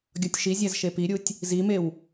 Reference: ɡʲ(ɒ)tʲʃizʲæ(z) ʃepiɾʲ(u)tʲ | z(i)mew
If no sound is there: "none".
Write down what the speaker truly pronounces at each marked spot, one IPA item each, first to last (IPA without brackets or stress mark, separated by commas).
ɒ, z, u, i